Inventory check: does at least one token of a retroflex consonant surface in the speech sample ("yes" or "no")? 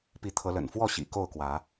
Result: no